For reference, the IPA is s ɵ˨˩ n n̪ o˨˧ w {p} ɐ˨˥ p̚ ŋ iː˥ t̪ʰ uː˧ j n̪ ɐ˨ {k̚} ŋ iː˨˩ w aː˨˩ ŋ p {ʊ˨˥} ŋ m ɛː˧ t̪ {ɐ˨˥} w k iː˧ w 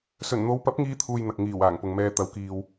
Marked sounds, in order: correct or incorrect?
correct, correct, incorrect: ʊ˨, correct

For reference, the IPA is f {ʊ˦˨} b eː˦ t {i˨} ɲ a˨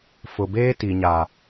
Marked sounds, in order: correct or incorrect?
incorrect: ʊ˨, correct

